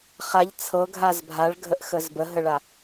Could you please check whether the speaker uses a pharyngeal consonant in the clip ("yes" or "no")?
no